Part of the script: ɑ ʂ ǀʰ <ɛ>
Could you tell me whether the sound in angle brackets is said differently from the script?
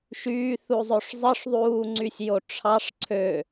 yes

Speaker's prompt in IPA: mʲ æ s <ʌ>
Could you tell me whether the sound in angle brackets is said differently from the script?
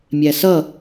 no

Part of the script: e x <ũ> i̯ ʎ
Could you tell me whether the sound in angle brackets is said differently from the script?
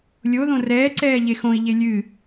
yes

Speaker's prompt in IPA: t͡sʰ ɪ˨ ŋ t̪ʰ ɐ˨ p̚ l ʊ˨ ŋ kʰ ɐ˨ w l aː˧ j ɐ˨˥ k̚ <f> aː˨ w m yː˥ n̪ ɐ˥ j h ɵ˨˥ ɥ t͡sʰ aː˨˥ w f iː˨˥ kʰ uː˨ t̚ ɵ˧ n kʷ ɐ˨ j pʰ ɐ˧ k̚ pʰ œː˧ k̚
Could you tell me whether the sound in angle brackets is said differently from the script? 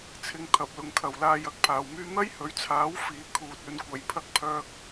yes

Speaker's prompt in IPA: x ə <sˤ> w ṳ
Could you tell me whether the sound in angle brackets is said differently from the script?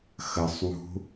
no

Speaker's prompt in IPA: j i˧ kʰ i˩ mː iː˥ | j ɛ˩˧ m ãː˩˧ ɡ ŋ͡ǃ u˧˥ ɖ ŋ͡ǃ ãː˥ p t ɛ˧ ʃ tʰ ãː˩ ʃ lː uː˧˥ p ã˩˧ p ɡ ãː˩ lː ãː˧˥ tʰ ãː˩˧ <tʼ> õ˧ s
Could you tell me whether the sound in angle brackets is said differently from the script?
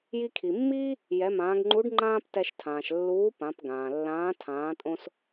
no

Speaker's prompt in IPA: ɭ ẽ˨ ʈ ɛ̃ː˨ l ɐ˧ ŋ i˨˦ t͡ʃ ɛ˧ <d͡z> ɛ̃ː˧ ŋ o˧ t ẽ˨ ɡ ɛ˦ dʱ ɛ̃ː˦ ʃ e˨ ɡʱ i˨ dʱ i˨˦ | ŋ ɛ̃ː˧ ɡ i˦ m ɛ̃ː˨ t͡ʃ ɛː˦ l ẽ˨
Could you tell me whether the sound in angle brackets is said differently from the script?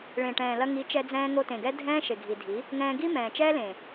no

